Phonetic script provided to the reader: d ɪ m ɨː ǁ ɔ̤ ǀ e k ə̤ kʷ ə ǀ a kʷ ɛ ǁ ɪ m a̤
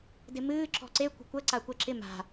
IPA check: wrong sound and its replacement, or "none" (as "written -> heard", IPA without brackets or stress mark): k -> kʷ